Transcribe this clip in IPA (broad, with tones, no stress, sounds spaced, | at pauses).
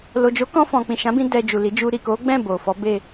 l o˨ d͡ʒ o˨˦ k ɔ̃˧ f ɔ̃˨ k͡p ĩ˨ ʃ ã˨˦ b ĩ˧ d ɛ˨ d͡ʒ u˨ l i˨˦ d͡ʒ u˧ ɾ i˨ k o˨˦ ɡ͡b ɛ̃˦˨ b o˨ f ɔ˨˦ b e˦˨